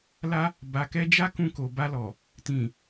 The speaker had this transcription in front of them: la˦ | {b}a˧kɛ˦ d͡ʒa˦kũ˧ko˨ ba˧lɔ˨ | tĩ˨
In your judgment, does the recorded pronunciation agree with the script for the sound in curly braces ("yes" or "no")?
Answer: yes